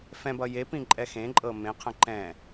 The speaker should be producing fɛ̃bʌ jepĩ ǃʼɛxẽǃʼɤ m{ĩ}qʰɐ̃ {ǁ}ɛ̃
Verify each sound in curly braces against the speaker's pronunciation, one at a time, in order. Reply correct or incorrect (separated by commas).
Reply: incorrect, incorrect